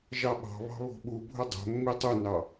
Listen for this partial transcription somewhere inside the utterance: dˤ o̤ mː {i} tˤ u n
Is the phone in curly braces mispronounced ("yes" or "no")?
no